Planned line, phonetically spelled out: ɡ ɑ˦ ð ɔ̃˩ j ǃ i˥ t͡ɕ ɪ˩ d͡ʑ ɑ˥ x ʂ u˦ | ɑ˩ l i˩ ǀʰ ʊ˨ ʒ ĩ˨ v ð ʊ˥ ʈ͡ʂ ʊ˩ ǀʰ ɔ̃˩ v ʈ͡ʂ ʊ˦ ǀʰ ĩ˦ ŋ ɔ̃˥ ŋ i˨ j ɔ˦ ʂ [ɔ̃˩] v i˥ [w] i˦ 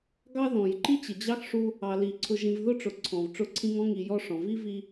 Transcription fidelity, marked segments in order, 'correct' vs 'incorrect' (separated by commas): correct, incorrect